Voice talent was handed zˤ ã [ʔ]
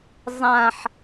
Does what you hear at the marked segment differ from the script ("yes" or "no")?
yes